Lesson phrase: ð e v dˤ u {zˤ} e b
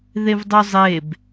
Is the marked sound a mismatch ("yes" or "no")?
no